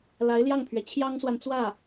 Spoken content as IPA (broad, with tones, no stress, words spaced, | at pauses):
la˧˥ɪ̯ljɑ˥˩ŋpʰɥɛ˩ t͡ɕʰjɑ˥ŋswa˨nt͡swä˥˩